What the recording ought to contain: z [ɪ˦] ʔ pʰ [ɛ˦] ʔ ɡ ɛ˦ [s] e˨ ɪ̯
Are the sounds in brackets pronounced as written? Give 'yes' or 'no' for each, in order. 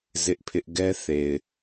yes, no, no

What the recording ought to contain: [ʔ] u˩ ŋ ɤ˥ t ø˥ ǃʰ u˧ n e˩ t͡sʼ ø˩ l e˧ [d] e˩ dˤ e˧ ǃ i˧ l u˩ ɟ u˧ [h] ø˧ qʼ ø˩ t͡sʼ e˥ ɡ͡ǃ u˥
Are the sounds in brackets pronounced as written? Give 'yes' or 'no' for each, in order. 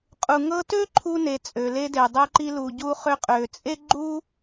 no, yes, no

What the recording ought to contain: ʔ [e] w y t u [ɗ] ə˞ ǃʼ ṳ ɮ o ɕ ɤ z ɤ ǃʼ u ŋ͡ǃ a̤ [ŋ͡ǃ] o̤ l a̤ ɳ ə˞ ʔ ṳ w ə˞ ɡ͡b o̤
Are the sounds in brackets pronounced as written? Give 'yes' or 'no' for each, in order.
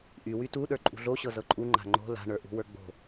no, yes, yes

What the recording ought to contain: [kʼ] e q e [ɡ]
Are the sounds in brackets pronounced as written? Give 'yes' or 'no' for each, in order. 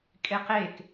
yes, no

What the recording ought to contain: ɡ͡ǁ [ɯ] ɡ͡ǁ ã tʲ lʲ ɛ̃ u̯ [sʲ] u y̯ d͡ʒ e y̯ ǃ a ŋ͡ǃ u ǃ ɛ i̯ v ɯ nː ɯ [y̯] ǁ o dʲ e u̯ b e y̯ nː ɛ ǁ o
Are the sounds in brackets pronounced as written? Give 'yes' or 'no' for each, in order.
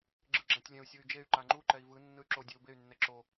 yes, yes, yes

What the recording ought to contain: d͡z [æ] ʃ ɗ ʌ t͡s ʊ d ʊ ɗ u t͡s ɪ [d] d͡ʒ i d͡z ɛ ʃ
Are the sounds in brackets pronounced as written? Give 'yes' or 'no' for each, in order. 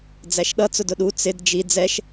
yes, yes

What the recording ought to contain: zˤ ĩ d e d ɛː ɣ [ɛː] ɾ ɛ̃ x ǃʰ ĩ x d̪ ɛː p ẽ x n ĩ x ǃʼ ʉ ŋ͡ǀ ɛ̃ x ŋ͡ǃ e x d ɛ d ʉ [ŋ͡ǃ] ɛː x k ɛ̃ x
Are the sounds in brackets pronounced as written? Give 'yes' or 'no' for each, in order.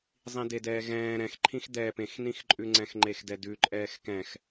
no, no

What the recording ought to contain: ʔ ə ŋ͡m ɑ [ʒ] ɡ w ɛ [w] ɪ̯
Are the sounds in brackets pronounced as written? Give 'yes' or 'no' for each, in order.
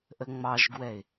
yes, no

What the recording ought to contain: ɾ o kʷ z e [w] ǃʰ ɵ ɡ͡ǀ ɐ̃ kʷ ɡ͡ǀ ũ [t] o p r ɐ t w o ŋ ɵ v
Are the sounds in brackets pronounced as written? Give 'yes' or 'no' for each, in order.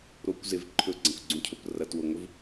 no, no

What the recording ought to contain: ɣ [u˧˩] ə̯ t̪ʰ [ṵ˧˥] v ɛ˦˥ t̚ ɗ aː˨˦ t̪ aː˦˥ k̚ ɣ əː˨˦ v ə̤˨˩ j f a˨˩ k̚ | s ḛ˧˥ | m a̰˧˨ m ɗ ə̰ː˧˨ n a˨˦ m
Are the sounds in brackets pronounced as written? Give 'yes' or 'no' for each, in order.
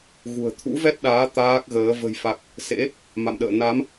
no, yes

